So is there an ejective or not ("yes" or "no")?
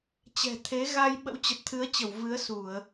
no